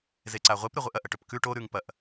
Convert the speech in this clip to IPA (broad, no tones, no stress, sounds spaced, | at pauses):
z e ǀ a ʁʷ e p ɾ ɨ ʁʷ ɨ ʔ ɐ ʔ ɐ ʈ ɵ p k ʉ ʈ o ɾ ʉ ŋ p ɐ ʔ